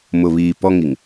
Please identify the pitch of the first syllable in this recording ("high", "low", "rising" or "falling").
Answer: low